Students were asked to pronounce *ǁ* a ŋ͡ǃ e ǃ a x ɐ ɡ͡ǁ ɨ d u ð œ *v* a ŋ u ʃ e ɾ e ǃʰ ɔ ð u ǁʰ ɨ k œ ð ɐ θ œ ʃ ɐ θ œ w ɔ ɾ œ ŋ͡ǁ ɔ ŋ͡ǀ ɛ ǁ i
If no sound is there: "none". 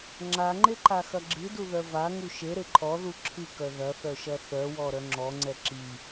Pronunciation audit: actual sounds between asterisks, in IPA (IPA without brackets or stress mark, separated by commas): ŋ͡ǁ, v